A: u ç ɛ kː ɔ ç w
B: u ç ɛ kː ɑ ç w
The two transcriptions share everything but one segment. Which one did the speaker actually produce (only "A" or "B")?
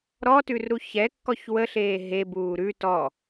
A